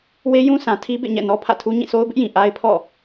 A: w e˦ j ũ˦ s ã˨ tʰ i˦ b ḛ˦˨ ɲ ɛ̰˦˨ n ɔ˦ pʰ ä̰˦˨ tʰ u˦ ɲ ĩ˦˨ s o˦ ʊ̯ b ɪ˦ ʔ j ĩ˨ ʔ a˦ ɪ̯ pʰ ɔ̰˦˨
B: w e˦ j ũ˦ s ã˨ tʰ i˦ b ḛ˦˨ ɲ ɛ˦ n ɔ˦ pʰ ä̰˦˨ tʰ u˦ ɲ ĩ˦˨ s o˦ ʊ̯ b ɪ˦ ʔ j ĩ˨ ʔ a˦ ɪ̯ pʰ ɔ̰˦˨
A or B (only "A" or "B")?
A